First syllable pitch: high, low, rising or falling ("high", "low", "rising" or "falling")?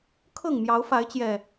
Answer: falling